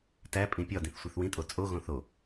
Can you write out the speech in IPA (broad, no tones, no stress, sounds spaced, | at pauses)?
t æ pʼ ĩ pʲ ɒ d ĩ θ sʷ i θ w ĩ tʼ o t͡sʼ o ɣ õ θ o